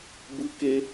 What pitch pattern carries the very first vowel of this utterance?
rising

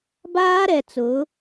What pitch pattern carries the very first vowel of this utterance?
high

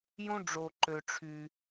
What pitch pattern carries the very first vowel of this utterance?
high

